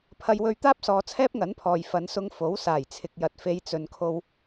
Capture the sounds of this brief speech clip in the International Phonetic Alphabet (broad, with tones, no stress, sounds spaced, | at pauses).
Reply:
pʰ ɐ˧ j w ɵ˧ ɥ t̪ aː˥ p̚ s ɔː˨˧ t͡sʰ ɛː˥ p̚ ŋ ɐ˨˥ n pʰ ɔː˨ j f ɐ˨˧ n s ʊ˧ ŋ f o˨˥ w s aː˨˩ j t͡sʰ ɪ˨ k̚ j ɐ˨ t̚ f e˨˧ j t͡s ɵ˨ n kʰ o˧ w